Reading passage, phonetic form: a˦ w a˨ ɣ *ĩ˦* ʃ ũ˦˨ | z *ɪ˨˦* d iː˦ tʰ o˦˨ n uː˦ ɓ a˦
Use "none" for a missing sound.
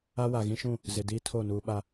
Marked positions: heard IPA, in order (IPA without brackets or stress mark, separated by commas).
ĩ˦, ɪ˨